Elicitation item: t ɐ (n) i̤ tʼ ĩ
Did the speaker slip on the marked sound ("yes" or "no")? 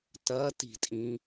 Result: yes